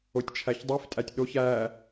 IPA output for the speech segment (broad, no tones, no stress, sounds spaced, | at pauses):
o tʲ t͡ʃʰ æ ç dˤ i f tʼ æ tʲ ɗ o ç æ